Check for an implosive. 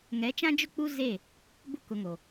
absent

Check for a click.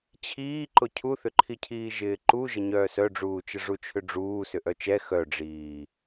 present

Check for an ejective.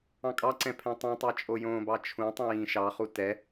present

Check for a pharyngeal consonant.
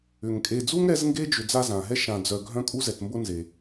absent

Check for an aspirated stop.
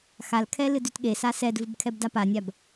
present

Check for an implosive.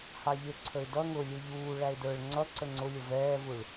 absent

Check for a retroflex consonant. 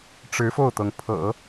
present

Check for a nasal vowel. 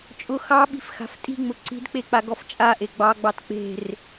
absent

